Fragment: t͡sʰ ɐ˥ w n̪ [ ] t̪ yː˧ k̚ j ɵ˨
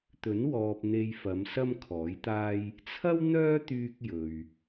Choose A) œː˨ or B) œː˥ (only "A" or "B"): B